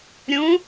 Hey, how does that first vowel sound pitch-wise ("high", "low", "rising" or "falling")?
rising